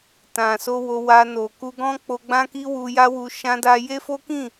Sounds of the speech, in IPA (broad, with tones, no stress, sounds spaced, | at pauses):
t ã˨ s o˧ w o˧ w a˧ n o˨ k u˧ ɡ ɔ̃˦ k͡p o˧ ɡ͡b ã˦ k i˦ w u˧ j a˦ w u˧ ʃ ã˦ d a˦ j e˦ f o˦ k ĩ˦˨